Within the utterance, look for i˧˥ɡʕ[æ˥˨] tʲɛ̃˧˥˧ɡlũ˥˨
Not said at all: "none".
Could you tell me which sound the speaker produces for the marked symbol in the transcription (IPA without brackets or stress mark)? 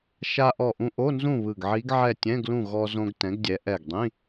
ɛ˥˨